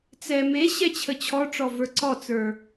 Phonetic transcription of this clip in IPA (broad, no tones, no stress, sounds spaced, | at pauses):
t͡s ɛ m e ɕ ɛ t͡ɕʰ ə t͡ɕʰ ɔ ʈ͡ʂ ɔ v ə˞ ǀ ɔ t͡s ə˞